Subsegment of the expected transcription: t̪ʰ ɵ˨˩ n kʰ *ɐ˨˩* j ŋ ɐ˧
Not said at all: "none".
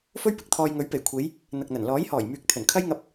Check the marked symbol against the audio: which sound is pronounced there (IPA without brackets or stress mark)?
ɐ˥